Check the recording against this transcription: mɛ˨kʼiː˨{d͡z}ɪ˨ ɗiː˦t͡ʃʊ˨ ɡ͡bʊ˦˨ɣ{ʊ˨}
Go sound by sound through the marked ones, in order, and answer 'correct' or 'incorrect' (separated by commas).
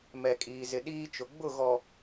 incorrect, incorrect